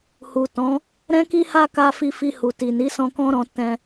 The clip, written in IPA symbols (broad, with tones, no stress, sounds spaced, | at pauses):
h u˨ t ɔ̃˨˦ | ɾ ɛ̃˦ k i˦ h a˦ k a˧ f i˧ f i˧ h u˨ t i˨ n i˨˦ s ɔ̃˧ k ɔ̃˦ ɾ ɔ̃˧ t ɛ̃˧